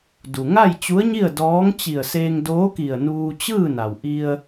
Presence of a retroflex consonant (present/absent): absent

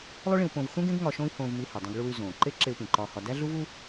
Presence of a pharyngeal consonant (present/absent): absent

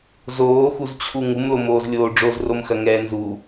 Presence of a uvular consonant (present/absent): absent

